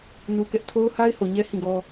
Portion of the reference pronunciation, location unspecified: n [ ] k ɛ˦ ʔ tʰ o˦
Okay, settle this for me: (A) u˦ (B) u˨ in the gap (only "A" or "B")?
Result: A